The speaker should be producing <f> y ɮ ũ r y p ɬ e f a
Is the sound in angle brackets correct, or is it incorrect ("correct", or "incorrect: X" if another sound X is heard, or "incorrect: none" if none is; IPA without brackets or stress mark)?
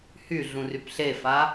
incorrect: h